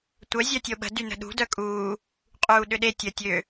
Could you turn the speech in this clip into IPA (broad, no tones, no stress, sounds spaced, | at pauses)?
tʷ œ zʲ œ tʲ o ɓ ə̤ d y n ə̤ ɗ ṳ d œ kʼ uː | qʼ uː ɗ ʏ ɗ e tʲ ə tʲ ø